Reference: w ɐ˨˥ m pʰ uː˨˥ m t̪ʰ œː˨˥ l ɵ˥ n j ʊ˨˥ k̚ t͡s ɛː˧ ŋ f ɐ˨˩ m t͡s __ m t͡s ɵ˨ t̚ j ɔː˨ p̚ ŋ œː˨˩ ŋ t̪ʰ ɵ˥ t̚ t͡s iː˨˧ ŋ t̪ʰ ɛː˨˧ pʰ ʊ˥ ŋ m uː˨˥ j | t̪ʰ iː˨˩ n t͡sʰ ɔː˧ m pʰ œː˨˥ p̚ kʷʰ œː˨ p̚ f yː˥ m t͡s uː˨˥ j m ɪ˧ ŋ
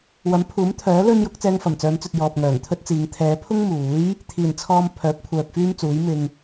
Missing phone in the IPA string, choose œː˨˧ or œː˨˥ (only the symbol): œː˨˧